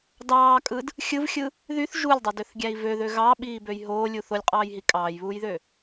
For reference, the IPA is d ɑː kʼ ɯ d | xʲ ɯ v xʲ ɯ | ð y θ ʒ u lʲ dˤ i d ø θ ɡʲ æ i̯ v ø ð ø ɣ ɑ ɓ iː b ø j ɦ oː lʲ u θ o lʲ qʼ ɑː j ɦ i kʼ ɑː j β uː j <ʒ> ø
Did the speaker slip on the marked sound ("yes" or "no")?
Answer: yes